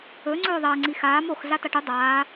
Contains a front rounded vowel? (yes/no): no